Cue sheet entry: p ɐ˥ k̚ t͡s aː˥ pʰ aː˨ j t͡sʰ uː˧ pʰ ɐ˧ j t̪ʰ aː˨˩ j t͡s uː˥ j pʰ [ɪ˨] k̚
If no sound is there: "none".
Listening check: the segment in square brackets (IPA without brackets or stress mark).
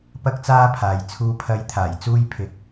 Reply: ɪ˧